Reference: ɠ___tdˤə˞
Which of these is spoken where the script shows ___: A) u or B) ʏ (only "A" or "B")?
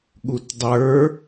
A